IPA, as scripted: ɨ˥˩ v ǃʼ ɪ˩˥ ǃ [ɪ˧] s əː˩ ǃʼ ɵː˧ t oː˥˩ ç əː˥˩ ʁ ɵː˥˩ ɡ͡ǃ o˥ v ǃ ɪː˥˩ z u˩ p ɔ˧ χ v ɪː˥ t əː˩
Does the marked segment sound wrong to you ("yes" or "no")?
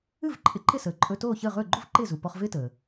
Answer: yes